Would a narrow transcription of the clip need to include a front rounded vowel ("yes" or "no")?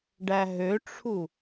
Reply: yes